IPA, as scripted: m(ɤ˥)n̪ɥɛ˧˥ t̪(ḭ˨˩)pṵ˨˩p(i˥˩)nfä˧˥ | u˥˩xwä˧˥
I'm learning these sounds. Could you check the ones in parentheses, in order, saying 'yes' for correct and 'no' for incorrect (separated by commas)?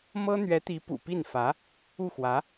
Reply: yes, no, yes